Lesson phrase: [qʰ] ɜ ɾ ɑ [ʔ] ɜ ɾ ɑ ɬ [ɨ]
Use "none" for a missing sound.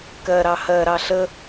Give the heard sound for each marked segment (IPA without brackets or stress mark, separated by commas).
k, h, ə